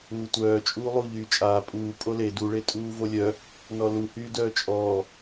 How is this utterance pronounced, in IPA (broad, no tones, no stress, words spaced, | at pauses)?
uːtʷœː t͡ʃʼuːlˠu ʎyːt͡ʃʼaː pʼuː pʼole du ɭetʼuːvolʲœ | nɔlu hyːdœːt͡ʃʼɔː